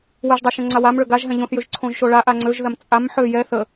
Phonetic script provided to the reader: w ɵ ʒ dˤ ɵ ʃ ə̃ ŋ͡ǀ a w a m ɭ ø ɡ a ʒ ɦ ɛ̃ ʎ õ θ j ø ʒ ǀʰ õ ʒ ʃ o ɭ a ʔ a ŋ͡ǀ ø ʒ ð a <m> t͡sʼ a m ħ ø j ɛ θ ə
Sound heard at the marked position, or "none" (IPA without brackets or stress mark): m